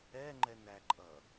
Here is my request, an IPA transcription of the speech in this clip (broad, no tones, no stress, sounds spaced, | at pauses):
ɛ ŋ͡ǃ ɛ n æ ǃʼ ʌ